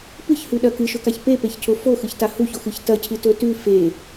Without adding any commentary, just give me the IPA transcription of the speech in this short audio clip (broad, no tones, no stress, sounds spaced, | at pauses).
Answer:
p ɨ ç h ʉ ɗ ɐ k ɨ ʃ ɵ k a ç p e p e ç cʰ o f o x ɨ ç t a h u ç o x ɨ ç t ɐ cʰ ɨ t ɵ t ʉ f e